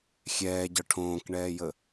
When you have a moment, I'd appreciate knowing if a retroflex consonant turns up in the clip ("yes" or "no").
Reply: yes